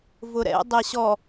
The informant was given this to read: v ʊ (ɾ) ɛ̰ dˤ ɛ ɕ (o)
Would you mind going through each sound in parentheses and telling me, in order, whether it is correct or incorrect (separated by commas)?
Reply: correct, incorrect